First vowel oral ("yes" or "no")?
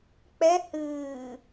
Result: yes